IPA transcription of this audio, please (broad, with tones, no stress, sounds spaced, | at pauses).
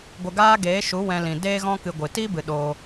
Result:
ɡʷ ə˧ ɡ aː˦ ɡ eː˨˦ ʃ u˨˦ w ɛ̃˧ l ĩ˨ d eː˧ ɣ ɔ̃˧ k ɨ˨ ɡʷ ɨ˨ t i˦ b ɨ˨ ɗ oː˧